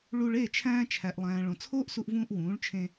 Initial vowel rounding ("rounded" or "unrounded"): rounded